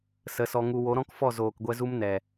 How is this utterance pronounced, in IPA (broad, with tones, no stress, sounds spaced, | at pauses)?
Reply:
s ə˨˦ s ɔ˧ ŋ u˧ w o˨˦ ɾ ɔ̃˦ k f ɔ˦˨ z oː˨ k ɡʷ ɛ˧ z u˦ m n ɛ˨